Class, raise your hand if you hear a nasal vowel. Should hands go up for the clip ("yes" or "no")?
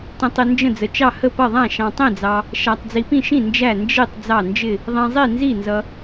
yes